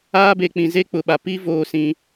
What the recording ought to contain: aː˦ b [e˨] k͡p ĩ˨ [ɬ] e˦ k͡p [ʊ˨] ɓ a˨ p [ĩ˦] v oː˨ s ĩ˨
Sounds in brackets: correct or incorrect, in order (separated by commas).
correct, incorrect, correct, incorrect